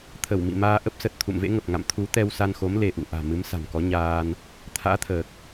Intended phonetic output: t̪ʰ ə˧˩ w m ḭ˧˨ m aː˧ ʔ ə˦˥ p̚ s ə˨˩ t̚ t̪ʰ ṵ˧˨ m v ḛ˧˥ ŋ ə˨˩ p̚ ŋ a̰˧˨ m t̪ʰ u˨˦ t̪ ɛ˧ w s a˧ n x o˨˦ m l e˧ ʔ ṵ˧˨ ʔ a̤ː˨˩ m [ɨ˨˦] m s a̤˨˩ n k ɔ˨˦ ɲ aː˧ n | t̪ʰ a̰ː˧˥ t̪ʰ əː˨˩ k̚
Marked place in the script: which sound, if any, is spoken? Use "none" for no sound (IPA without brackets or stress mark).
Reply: ɨ˨˦